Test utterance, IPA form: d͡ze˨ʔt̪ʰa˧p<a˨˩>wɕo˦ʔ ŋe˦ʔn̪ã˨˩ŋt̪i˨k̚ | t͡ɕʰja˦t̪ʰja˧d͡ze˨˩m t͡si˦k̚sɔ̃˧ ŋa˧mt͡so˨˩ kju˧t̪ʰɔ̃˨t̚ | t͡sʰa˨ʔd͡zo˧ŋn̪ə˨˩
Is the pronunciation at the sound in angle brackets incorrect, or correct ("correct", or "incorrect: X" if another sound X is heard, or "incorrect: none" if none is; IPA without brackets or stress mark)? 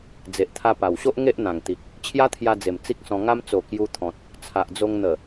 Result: correct